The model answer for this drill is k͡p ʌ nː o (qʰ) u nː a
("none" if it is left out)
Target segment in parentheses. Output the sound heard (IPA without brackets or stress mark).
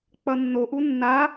ʔ